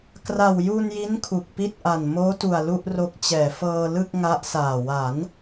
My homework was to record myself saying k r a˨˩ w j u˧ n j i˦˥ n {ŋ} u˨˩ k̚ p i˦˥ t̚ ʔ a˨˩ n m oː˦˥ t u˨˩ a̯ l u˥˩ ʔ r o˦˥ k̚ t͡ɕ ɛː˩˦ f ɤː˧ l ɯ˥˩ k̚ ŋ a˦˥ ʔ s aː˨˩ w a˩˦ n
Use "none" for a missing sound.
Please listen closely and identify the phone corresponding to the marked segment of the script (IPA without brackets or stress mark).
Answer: kʰ